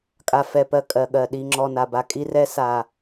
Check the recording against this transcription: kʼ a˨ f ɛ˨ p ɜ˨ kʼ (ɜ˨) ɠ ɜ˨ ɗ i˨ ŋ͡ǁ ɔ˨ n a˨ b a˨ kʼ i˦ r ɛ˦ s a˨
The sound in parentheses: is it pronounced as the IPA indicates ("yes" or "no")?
yes